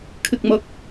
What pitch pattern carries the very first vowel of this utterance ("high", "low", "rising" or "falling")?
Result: high